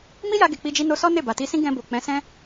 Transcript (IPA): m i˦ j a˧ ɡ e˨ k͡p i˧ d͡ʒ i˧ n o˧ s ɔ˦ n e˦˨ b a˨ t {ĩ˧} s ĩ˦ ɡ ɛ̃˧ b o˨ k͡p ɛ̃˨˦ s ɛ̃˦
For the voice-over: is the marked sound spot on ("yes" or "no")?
no